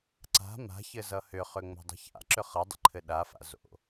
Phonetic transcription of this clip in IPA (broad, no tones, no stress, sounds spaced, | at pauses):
ǀ a̤ m a̤ ç ɘ z ʌ h ʏ χ ʏ ŋ͡m o̤ dˤ ə̤ ç a̰ ǁ ʏ χ ʌ dˤ ə̰ ǃʰ ɘ ɗ a f a̰ z o̰